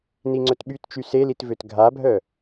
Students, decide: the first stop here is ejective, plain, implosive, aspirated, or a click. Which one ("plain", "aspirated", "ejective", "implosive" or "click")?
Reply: click